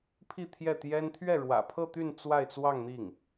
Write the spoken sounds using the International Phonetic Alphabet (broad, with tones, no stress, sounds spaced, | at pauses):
pʰ i˥˧ t̪ʰ j ɛ˥˩ t̪ j ɛ˥ n t̪ʰ ɥ ɛ˥˩ ɻ w ä̰˨˩ pʰ ɤ˥˧ t̪ y˥˧ n t͡s w a˥˧ ɪ̯ t͡s w ɑ˥˧ ŋ n̪ i˥˩ ŋ